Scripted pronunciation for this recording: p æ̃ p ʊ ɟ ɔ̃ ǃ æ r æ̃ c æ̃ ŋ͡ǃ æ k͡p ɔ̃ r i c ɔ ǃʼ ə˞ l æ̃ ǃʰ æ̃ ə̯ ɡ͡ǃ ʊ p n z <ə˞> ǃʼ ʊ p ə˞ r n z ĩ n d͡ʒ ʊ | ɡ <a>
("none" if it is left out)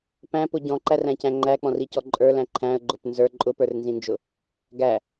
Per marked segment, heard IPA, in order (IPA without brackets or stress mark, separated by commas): ə˞, æ